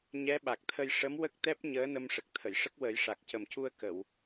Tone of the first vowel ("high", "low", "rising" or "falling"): rising